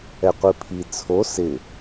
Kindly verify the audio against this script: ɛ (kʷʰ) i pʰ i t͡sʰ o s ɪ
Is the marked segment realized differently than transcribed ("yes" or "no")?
yes